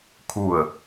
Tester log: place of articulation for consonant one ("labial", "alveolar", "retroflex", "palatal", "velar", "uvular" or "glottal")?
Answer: velar